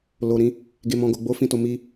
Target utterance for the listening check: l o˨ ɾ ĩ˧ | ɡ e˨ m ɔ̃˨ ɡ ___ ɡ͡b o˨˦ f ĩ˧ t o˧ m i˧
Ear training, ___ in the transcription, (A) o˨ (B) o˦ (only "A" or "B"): A